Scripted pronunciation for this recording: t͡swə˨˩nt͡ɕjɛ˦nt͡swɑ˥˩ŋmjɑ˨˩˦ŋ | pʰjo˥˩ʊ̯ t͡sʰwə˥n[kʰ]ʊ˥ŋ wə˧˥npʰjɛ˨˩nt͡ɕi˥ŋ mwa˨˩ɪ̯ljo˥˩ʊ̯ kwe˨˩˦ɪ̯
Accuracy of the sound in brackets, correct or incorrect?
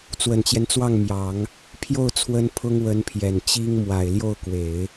incorrect